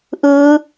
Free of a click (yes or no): yes